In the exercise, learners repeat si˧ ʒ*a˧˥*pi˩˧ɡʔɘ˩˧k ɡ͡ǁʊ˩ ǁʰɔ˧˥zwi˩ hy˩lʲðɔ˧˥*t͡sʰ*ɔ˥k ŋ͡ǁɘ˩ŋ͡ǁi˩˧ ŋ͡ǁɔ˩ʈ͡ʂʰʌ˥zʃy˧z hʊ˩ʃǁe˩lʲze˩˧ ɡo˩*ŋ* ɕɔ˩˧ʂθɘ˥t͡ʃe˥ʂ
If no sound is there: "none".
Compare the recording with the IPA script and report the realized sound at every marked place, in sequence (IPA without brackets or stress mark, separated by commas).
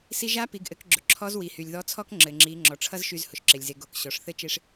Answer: a˧˥, t͡sʰ, k